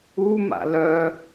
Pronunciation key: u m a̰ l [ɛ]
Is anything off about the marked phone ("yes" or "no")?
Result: yes